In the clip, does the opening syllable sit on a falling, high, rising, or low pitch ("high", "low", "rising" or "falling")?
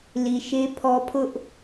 low